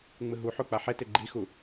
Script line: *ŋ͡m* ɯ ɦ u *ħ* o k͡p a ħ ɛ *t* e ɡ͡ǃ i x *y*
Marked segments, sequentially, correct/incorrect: correct, correct, correct, incorrect

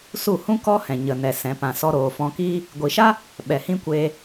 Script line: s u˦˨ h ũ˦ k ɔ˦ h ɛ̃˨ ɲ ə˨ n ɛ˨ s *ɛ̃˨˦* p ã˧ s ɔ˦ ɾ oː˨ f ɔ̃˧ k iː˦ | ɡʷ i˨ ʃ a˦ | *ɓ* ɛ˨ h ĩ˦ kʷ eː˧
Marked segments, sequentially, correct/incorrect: correct, correct

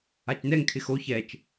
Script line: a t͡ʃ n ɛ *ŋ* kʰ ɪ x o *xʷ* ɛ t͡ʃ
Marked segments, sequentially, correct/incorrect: correct, incorrect

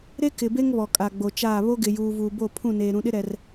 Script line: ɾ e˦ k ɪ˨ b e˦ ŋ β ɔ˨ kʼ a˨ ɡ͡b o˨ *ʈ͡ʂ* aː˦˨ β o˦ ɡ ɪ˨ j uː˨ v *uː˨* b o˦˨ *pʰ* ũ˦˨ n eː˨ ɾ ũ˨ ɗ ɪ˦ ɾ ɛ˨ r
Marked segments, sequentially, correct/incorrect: incorrect, correct, correct

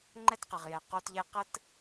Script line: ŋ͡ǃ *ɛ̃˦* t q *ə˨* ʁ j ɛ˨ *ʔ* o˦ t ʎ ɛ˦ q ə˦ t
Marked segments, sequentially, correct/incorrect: incorrect, correct, incorrect

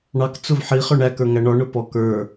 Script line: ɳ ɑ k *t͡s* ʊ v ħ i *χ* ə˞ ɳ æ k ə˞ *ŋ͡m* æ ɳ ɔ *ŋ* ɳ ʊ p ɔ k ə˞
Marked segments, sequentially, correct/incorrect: correct, correct, incorrect, incorrect

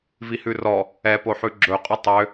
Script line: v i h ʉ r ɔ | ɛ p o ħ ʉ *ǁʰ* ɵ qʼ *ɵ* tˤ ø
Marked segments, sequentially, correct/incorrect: incorrect, correct

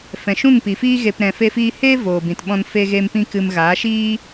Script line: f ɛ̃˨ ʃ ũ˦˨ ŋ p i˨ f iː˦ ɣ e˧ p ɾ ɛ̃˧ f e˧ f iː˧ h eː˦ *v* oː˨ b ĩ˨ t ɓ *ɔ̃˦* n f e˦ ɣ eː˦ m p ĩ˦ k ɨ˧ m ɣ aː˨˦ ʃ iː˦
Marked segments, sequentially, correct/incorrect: correct, incorrect

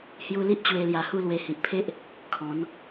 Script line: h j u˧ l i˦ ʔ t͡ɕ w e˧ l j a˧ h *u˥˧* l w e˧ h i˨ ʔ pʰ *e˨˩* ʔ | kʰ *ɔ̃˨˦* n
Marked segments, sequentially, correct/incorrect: correct, incorrect, correct

